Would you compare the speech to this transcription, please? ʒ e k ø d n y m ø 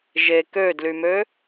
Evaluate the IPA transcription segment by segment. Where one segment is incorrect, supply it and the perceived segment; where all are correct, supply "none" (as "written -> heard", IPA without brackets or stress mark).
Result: n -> l